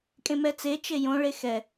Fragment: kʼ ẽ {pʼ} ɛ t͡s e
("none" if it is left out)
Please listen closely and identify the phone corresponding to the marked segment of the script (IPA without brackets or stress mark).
m